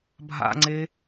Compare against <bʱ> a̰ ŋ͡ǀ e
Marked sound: correct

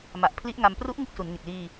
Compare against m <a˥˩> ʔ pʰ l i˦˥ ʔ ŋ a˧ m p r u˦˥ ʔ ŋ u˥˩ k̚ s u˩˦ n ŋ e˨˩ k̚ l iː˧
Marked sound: incorrect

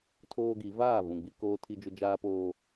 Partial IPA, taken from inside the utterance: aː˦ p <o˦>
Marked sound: incorrect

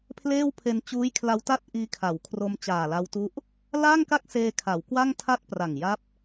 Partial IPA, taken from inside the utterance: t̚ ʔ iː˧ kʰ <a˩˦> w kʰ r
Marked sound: correct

